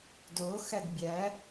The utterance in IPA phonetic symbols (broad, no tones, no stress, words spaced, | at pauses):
do xædbʲæ